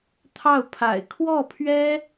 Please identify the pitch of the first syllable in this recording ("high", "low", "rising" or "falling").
falling